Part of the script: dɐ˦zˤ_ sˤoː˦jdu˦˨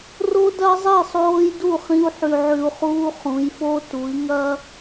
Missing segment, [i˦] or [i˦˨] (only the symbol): i˦˨